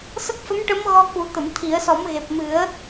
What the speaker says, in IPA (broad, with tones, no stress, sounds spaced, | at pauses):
s ə˦˥ k̚ f ə˧˥ m ʈ ə˧˥ m ɣ ɔ˧ k u˨˩˦ t̪ ə˨˩˨ m t̪ʰ i˨˩˦ ə̯ s ɔ˨˩˦ m ɣ e˨˩ p̚ m ɨ˨˩˦ ə̯